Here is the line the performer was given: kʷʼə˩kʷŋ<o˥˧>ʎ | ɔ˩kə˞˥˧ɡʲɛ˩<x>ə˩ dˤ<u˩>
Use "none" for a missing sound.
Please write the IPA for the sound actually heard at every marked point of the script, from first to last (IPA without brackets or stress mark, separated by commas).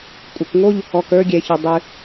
o˥˧, ç, ʉ˩